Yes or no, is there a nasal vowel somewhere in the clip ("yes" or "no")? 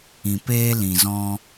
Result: yes